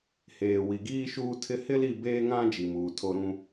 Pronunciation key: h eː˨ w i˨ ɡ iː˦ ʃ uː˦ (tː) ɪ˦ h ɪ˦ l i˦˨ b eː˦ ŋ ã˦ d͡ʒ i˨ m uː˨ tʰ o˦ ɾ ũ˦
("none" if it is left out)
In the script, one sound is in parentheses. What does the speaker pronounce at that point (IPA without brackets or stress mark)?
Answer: tʰ